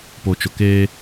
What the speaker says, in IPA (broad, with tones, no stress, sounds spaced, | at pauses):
p o˨ t͡ʃ ʊ˨ k eː˦